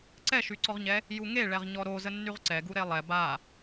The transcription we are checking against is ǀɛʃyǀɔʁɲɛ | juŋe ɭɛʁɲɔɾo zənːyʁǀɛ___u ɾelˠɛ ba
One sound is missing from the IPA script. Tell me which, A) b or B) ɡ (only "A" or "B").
B